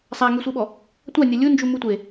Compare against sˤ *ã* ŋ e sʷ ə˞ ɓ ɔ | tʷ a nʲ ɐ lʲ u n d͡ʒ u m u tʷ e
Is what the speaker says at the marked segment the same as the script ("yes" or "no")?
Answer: no